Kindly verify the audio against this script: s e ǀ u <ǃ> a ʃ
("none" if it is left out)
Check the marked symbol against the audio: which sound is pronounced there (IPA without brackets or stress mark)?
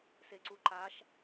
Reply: ǃ